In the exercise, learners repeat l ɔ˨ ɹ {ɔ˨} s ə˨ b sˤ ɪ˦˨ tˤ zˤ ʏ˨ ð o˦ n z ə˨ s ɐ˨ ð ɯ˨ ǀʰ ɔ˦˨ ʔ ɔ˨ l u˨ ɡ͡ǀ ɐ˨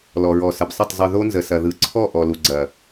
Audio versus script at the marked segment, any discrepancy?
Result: no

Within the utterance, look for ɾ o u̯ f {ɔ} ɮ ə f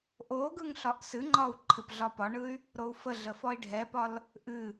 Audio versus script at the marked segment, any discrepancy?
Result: yes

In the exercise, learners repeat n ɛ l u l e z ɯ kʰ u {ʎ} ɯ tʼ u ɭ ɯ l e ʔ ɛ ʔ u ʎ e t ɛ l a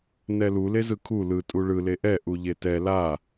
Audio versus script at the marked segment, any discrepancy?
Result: yes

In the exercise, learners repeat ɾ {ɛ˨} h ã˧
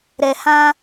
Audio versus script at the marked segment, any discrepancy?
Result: no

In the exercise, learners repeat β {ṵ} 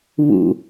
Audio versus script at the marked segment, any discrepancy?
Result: no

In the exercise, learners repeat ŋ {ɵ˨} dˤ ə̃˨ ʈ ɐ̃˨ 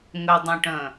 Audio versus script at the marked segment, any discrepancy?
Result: no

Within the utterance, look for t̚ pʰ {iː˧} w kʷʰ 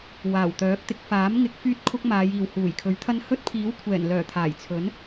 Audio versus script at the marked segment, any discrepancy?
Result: yes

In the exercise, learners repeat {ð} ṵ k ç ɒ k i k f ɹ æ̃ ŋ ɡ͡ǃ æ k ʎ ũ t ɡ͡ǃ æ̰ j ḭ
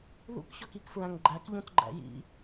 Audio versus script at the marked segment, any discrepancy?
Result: no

